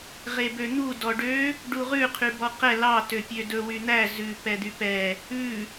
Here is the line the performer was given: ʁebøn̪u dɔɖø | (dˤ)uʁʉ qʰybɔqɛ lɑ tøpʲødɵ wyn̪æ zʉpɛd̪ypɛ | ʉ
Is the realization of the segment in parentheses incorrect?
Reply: yes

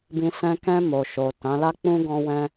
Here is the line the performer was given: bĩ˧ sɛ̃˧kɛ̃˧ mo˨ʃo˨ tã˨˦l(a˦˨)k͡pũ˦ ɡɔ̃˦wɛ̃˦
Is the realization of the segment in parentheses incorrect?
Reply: yes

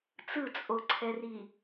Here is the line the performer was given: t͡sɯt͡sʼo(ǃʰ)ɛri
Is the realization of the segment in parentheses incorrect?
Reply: yes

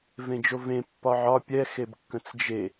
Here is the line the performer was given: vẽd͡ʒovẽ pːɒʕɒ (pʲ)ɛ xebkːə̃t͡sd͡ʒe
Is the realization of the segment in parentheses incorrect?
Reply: no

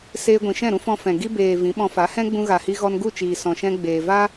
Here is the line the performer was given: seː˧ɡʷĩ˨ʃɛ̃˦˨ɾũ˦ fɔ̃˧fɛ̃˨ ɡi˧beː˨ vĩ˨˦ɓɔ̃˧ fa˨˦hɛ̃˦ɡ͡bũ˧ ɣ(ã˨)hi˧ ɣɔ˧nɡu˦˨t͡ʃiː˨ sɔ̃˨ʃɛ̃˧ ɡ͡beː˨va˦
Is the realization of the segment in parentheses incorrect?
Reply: yes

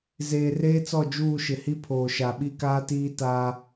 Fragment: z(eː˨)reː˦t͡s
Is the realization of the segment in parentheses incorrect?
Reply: no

